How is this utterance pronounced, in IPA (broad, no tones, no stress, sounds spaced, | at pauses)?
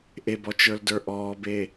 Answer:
ʔ e b ɔ t͡ʃ ə˞ l d ə˞ ʔ ɔː b e